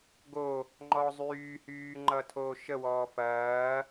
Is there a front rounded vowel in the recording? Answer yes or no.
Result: yes